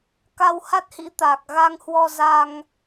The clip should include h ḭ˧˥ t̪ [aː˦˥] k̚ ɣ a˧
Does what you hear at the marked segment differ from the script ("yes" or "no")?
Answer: yes